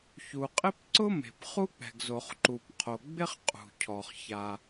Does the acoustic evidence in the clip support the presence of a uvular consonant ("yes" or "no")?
yes